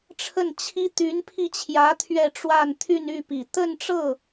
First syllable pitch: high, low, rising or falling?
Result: falling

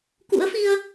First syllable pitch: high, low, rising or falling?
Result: rising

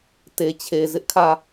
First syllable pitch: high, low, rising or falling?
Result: low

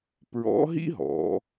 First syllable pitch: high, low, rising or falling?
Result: rising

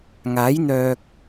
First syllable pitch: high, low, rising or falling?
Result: rising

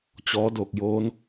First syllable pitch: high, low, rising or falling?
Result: rising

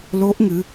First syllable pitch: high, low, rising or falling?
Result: rising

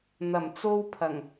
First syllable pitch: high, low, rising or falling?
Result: low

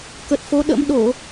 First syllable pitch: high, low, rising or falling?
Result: low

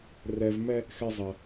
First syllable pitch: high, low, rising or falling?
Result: low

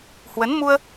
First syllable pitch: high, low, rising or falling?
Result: rising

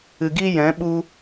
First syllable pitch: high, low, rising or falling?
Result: low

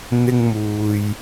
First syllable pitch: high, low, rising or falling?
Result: high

